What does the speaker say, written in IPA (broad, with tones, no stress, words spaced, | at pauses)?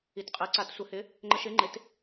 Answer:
i˩˥tqʼɜ˩˥ǀa˨˩˦t sʷə˨˩˦hɪ˩˥ | ŋ͡ǃə˧ʃɪ˩˥ŋ͡ǃɪ˩˥t